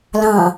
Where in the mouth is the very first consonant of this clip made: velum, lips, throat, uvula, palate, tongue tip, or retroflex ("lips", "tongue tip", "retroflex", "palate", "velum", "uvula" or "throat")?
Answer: tongue tip